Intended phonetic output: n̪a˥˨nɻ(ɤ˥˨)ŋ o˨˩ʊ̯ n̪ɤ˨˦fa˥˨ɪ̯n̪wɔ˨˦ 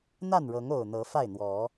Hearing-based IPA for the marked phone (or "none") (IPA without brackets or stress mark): ɤ˨˦